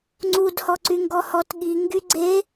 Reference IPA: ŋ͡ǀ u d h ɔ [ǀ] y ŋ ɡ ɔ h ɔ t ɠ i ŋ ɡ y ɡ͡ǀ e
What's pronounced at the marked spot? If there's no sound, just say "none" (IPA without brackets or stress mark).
ǀ